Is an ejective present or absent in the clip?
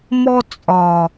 present